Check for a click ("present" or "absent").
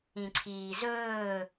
present